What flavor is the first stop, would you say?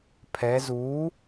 aspirated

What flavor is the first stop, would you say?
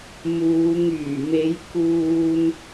plain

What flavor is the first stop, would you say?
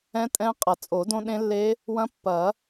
ejective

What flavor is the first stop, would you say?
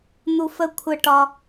aspirated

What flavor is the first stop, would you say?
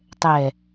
plain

